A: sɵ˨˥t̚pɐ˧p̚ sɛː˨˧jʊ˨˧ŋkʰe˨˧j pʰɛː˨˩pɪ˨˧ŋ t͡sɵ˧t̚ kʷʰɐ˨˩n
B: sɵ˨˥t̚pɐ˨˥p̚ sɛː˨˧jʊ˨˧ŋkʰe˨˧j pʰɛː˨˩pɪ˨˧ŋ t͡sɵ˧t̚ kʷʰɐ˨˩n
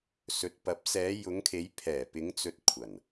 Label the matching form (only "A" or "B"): B